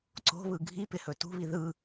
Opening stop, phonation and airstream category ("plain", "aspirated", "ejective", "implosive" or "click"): click